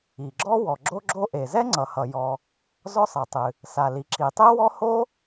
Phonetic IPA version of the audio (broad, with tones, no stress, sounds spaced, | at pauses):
i˩ ɡ͡ǁ ɔ˥ w ɔ˩ ɡ͡ǁ o˥ ɡ͡ǁ o˥ ʔ e˩ z ɛ˥ ŋ͡ǀ ʌ˩ h ʌ˩ j ɔ˩ | z ɔ˥ sˤ ɛ˩ tˤ ɨ˩ | s a˩ l i˩ ǁ i˩ tˤ e˥ w ɔ˥ h o˥